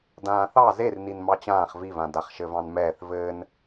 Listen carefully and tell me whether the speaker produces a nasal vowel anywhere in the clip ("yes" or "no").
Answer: yes